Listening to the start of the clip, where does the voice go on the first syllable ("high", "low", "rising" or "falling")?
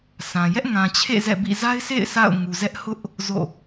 low